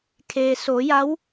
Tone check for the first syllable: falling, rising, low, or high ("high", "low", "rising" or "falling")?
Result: low